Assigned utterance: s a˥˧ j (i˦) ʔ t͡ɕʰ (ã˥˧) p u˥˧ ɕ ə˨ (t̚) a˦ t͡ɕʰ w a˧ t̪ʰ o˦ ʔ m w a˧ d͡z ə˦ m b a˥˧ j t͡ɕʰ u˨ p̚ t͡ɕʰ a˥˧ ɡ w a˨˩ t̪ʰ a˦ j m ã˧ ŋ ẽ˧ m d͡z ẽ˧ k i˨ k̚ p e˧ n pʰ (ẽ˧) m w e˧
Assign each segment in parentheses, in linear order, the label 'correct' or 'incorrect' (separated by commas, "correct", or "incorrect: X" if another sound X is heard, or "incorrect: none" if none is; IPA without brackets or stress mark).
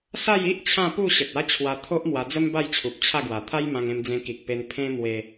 correct, correct, correct, incorrect: ẽ˦